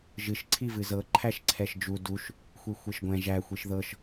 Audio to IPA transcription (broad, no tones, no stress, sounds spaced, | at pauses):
ʒ ɨ ʃ ǀʰ i v ɨ z ɤ ǃʰ æ ʃ ǀʰ ɛ ʃ d͡ʒ u d u ʃ | xʷ i xʷ e ʃ ɡʷ ɛ̃ ʒ æ xʷ i ʃ ð ɤ ʃ